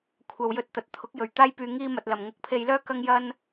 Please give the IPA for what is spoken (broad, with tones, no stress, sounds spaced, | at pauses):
kʷʰ ɐ˨ w j ɵ˧ t̚ t̪ ɐ˨ t̚ t̪ʰ ʊ˨˥ k̚ j ɵ˨˩ ɥ t̪ aː˥ j p yː˧ ŋ iː˥ m ɐ˧ t̚ l ɐ˨ m ŋ ʊ˨˥ k̚ pʰ e˧ j l œː˥ k ɐ˥ ŋ j ɐ˥ n